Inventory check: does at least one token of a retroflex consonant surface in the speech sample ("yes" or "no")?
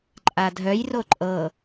no